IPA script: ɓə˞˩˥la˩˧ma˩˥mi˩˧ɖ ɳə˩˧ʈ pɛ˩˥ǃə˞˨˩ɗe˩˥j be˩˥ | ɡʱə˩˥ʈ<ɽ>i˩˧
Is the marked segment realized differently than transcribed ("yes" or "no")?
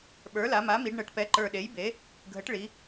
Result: yes